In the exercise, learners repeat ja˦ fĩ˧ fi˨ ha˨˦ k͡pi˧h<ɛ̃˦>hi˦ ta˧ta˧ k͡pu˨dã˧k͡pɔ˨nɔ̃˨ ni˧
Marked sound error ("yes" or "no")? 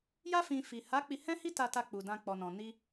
no